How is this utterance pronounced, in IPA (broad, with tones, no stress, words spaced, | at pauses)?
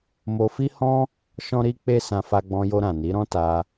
mo˧fi˦hɔ̃˦ | ʃɔ̃˦ɾi˦k͡pe˦sã˧ fa˧ɡ͡bɔ̃˧jo˧ ɾã˨ni˨˦ɾɔ̃˦ ta˧